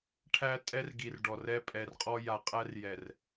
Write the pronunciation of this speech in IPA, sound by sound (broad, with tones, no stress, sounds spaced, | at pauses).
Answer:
ʈʰ æ˦ tʼ ɛ˦ r ɡ i˨ r ɖ ɔ˨ r ɛ˦ pʼ ɛ˨ r qʼ ɔ˦ j a˨ qʼ æ˦ r j ɛ˨ r